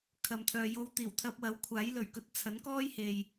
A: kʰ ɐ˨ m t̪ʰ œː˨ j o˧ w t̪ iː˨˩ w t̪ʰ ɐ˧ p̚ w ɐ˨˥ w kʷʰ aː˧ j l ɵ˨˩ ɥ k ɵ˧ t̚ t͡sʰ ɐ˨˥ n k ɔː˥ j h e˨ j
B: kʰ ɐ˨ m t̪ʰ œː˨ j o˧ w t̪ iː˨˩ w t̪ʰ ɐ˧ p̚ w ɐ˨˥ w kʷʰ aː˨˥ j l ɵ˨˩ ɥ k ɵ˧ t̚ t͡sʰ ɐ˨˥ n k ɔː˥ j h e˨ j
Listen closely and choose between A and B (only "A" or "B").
B